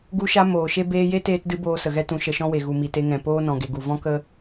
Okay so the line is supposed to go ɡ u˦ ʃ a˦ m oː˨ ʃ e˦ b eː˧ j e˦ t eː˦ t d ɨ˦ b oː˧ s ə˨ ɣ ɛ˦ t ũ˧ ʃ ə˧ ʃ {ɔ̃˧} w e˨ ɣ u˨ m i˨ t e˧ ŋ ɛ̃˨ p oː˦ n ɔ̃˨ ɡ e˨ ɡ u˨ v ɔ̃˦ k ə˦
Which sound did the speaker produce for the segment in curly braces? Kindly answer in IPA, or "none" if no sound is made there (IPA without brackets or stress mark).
ɔ̃˦